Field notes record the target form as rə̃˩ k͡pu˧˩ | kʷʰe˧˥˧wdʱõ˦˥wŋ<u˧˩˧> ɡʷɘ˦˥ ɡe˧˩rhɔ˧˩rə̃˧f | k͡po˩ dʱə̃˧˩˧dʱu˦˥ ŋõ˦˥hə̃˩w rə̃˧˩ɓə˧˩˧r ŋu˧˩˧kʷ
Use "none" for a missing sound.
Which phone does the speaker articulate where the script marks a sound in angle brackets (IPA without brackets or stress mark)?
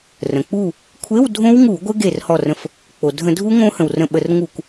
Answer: u˧˩˧